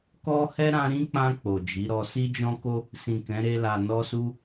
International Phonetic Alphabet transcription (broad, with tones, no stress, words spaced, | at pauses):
kɔ˦ hɛ˦ɾã˧ɾĩ˦k͡pã˧ k͡po˨d͡ʒi˨˦ɾɔ˧ si˦d͡ʒɔ̃˦ko˦ | sĩ˨ kɛ̃˨˦ɾe˧ la˨nɔ˧su˧